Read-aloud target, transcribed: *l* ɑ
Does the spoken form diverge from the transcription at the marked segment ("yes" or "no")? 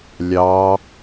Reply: yes